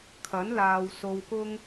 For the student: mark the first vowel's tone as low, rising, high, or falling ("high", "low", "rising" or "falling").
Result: rising